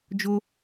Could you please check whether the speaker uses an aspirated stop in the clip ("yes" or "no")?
no